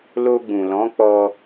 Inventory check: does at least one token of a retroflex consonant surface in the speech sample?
no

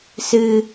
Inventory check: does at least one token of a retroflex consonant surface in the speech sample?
no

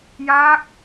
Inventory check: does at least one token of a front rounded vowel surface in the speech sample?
no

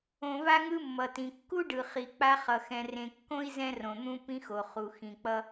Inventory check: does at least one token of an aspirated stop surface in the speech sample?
no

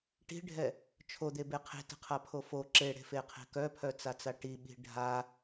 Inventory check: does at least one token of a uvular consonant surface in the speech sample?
yes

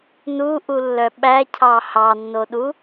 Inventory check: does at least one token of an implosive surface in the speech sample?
yes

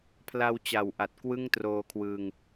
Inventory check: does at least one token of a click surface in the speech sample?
no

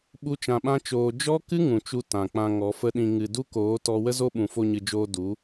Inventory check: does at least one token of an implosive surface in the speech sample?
yes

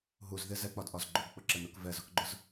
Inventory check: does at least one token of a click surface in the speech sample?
yes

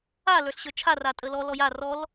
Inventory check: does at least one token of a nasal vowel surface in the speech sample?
no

